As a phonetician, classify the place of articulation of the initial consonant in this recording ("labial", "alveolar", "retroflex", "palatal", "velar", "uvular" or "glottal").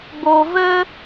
labial